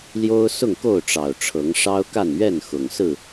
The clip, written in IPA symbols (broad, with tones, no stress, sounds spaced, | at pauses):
l j o˦ ʊ̯ s ʊ˥˨ ŋ k o˥˨ ʊ̯ ʈ͡ʂ ɑ˨˩ ʊ̯ ʈ͡ʂʰ ɤ˨˦ ŋ ʂ ɑ˦ ʊ̯ k a˥˨ n ɥ ɛ˥˨ n x ʊ˨˩ ŋ s ɹ̩˥˨